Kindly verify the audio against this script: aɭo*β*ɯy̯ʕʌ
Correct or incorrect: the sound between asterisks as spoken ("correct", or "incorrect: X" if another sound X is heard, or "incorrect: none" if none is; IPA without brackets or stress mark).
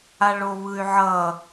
correct